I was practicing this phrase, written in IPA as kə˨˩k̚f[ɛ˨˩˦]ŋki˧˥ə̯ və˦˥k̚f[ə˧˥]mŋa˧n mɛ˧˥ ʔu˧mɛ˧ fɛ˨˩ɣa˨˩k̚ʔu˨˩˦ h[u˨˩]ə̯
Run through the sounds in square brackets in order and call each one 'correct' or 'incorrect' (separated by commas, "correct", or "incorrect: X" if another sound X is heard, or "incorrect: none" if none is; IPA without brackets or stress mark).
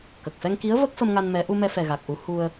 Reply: incorrect: ɛ˧, incorrect: ə˧, incorrect: u˧